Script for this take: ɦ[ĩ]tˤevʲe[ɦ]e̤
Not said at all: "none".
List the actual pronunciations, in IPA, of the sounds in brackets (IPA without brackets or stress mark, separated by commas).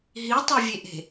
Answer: i, ʔ